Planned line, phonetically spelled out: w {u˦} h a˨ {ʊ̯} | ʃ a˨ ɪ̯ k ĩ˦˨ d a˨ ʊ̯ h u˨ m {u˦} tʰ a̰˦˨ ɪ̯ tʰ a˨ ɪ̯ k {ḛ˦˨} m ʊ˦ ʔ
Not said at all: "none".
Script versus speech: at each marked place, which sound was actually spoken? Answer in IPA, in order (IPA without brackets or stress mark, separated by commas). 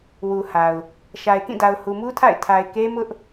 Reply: u˨, ʊ̯, u˦, e˦